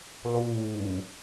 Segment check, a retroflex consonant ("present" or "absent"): absent